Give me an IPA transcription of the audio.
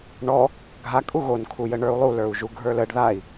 ɳ ɔ | ɡʱ a kʼ u ɣ o n kʰ u j ə ɳ ə˞ u̯ lˠ u l ə˞ u̯ ʒ u ɡʱ ə˞ l ə ɖ ð a i̯

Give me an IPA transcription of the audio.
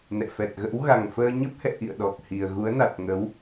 n ɛ̰˧˨ f ɛ˨˩ t̚ ɣ ə̰˧˥ w ɣ a˨˩ ŋ f əː˧ ɲ ə˦˥ p̚ h ɛ̰˧˨ ʔ ḭ˧˨ ə̯ ɗ ɔ˨˩ k̚ h i˨˩ ə̯ ɣ u˨˦ ə̯ n a˨˩ t̚ ŋ ə˨˦ w

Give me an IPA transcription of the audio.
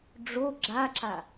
ɖ͡ʐ o ɡ͡ǁ a ǁ a

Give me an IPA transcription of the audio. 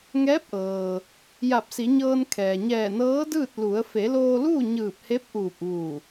ŋ ɛː˧˥ p̚ ʔ ɤː˩ | j a˧˩ p̚ s i˩˧ ɲ ɤː˧ n kʰ ɛː˩ ɲ ɛː˧˩ n ɤː˧˥ d ɯː˥˨ t̚ l u˩˧ ə̯ f e˩˧ l oː˧ l uː˥˨ ɲ ɯː˧˩ p̚ h e˧˥ p̚ ʔ uː˧˩ p̚ ʋ u˧˩

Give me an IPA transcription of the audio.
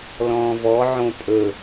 l ɔ̃ː v ɔ ʕ õ pʼ ɵ

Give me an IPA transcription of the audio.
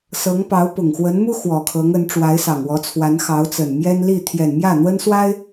s ɤ˧˥ ŋ p ɑ˧˥ ʊ̯ p ʊ˨˩ ŋ x w ə˧˥ n m u˥ x w ɔ˨˩ kʰ ɤ˧˥ ŋ ə˧˥ n ʈ͡ʂ w a˧˥ ɪ̯ s ɑ˨˩ ŋ w ɔ˧˥ t͡sʰ w a˧˥ n x ɑ˧˥ ʊ̯ t͡s ə˨˩ n m j ɛ˥ n l i˥˩ t̪ʰ j ɛ˨˩ n m j ä˥˩ n̪ w ə˥ n s w a˥ ɪ̯

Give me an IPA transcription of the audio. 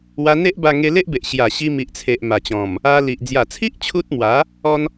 w a˧ n̪ e˦ ʔ b a˧ ŋ e˧ l e˦ ʔ b e˨ ʔ ɕ j a˨˩ ɕ i˧ m i˨ ʔ t͡sʰ e˨ ʔ m a˨˩ t͡ɕ ɔ̃˨˩ m | a˧ l i˨ ʔ d͡z j a˨˩ t͡sʰ i˦ ʔ t͡ɕʰ u˦ t̚ m w a˨˦ | ɔ˧ n

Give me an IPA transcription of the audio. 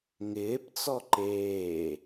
ŋ ɪː p t͡s ɔ ǃ eː

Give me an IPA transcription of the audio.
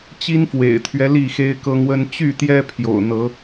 t͡ɕ i˦ n f w ḛ˨˩ ɪ̯ t̪ʰ ɥ ɛ˦ l i˥˨ x e˦ ɪ̯ k ɤ˦ ŋ w ə˦ n t͡ɕ y˥˨ t̪ j ɛ˦ pʰ j o̰˨˩ ʊ̯ n̪ ɤ˨˦

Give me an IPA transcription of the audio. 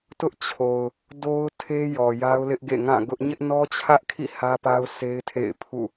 t ʊ˦ ʔ t͡ɕʰ o˨ ʊ̯ | d o˦ ʊ̯ tʰ e˦ j ɔ˨ j a˦ ʊ̯ l ɪ˦ ʔ ɡ ḛ˦˨ ŋ ã˦˨ ɡ ʊ˦ ʔ ɲ ɪ˦ ʔ n ɔ˦ t͡ɕʰ ä˦ ʔ kʰ ḭ˦˨ h ä˦ p a˦ ʊ̯ sʰ e˦ ɪ̯ tʰ ḛ˦˨ ɪ̯ pʰ ṵ˦˨

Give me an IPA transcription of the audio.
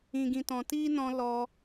ĩ˨ ɡ ĩ˨ t ɔ̃˨ t iː˦ n ɔ̃˧ l ɔ˧

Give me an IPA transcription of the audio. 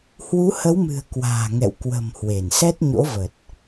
h w u˨˦ h ə˨˦ w m ɨ̤˨˩ ə̯ k w a̤ː˨˩ ŋ ɛ̰˧˨ w k w ə̤˨˩ m h w e˧˩ n s ɛ˦˥ t̚ ɲ o̰˧˥ v ə˨˩ t̚

